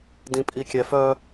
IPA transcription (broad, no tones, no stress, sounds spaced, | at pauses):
d ĩ pʼ i kʲ ɛ f œ